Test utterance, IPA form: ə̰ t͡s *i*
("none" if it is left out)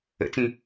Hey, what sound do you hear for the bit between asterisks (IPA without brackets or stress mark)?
ĩ